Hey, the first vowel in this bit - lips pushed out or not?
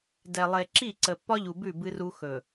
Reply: no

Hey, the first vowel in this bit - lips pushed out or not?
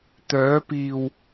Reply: yes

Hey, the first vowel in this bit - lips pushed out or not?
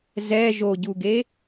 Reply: no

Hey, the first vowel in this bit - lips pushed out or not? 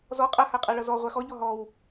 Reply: yes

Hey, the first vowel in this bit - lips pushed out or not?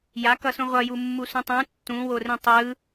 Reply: no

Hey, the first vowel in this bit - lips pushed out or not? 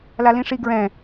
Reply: no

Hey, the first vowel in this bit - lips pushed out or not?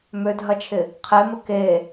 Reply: yes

